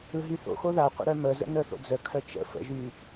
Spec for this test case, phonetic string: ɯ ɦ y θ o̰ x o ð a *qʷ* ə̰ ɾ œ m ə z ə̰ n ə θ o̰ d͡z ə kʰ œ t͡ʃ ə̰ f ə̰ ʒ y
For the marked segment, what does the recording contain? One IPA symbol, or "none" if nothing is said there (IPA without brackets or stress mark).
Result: qʷ